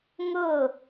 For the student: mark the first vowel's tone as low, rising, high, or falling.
falling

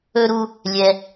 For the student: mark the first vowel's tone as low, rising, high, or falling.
high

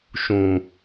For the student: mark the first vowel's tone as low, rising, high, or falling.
low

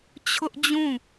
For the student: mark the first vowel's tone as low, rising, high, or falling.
high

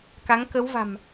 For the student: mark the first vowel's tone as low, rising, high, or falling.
rising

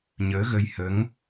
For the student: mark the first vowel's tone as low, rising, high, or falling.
rising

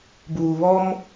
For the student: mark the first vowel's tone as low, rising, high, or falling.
low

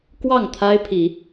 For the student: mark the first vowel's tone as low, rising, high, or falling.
falling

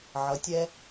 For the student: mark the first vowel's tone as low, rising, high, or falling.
rising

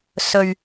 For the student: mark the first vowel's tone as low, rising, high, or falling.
low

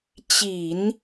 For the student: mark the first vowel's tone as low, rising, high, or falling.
low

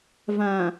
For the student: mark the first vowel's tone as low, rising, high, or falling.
low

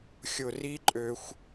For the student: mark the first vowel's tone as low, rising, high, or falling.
low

